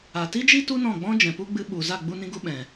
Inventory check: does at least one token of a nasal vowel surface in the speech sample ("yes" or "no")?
yes